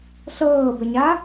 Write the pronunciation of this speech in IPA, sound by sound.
ɬ ɤː b ə ɲ a

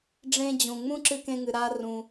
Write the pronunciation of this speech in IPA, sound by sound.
ɖ͡ʐ ẽ˧ d͡ʑ ũ˩ ŋ͡m ũ˥ ǁ ɨ˧ k ẽ˧ ŋ ɨ˩ ɾ a˧ r ũ˧

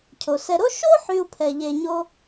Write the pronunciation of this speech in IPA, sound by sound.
cʰ o˩ s ɛ˨ ɾ o˥ ʃ o˥ ħ y˨ u̯ pʰ ɛ˩ ʎ e˩ ɲ o˨

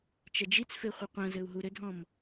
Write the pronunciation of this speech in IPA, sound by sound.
t͡ʃ ɐ d͡ʒ i t͡s f e χʷ ɨ qʷ ɐ̃ z ɘ u̯ ɦ u ɾ ɘ dʱ ɔ̃ m

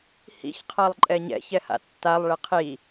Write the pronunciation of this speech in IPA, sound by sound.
h ḭ ç qʰ a lˠ ǃʼ ɛ ɲ ɛ̰ ç ɛ h a̰ tː a lˠ ɭ ɛ qʰ i

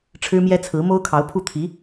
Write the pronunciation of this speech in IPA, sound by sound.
ʈ͡ʂʰ ɻ̩˥ m j ɛ˥ t͡sʰ ɹ̩˧˥ m o˥ ʊ̯ kʰ ɑ˧˥ ʊ̯ pʰ u˥˩ t̪ʰ i˧˥

